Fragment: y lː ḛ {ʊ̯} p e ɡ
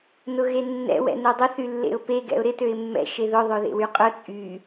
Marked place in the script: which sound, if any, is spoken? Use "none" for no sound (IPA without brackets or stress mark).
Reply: ʊ̯